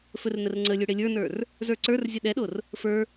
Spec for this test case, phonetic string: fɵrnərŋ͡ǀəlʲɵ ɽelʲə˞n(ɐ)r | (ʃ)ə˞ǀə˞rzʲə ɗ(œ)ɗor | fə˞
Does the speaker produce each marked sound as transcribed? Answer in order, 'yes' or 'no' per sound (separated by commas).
no, no, no